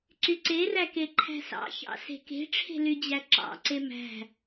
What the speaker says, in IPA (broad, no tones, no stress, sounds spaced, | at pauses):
ǀ y ǀ e r æ k e ǃʰ æ̤ s ɑ̰ ç ɑ̰ s e̤ k e̤ ʈ͡ʂʰ e̤ l y d͡ʑ æ ǁ ɑ̰ ǀ e m æ̤